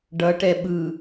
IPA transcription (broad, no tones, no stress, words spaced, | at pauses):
ɖʌʈɛ ɓɯ